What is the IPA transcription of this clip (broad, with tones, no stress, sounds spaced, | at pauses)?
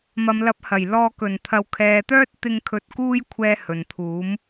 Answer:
m ɐ˨ m l ɐ˨˥ p̚ h ɐ˨˩ j l ɔː˧ k ɵ˨˩ n t̪ʰ ɐ˨ w kʰ ɛː˨ t̪ œː˥ t̚ t̪ ɪ˧ ŋ kʰ ɵ˨ t̚ k uː˧ j kʷʰ ɛː˨ h ɵ˨˩ n t̪ʰ uː˨˥ m